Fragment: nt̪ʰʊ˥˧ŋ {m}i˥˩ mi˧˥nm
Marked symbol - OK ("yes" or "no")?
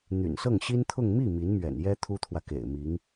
yes